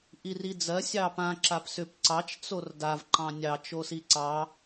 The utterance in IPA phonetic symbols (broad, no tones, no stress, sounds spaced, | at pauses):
ʔ i r i d͡z ɜ sʲ ɑ p ã ǁ a p s ʏ p ǀ ɑ t͡ʃ t͡s o r d a v ǃ ɑ̃ nʲ ɑ t͡ʃ o s i ǀ ɑ